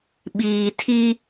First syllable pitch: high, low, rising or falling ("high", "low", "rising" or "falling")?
low